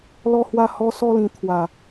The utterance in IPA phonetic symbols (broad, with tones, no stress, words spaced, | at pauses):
lɔ˥˧hwa˥˧ hɔ˦ sɔ˥˧lĩ˧t̪ʰwa˨˩